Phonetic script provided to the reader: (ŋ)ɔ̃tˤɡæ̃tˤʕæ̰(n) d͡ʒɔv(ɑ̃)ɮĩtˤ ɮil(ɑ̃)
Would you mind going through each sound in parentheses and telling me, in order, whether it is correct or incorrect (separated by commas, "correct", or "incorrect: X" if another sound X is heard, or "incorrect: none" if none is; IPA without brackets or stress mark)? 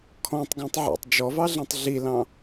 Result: incorrect: kʰ, incorrect: tˤ, incorrect: ɑ, correct